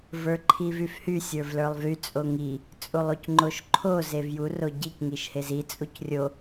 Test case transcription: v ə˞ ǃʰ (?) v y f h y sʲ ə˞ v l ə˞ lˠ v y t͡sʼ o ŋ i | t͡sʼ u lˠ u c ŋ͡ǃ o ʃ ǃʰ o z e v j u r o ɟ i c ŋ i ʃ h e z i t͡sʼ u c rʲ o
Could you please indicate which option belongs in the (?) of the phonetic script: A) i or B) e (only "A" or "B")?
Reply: A